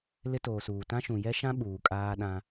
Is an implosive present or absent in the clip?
present